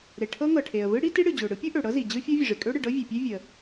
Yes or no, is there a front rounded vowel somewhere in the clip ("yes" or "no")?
yes